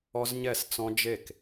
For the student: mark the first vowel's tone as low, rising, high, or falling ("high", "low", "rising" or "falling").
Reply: high